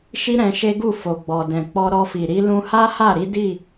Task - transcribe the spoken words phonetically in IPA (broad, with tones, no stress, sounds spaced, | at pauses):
ʃ i˦ ɾ ɛ̃˧ ʃ e˦ ɡ u˦˨ f o˨ ɡ͡b ɔ˨ d ɛ̃˨ k͡p ɔ˧ ɾ ɔ˧ f i˨ ɾ i˨˦ l ũ˧ h a˦ h a˦˨ ɾ i˨˦ d i˦˨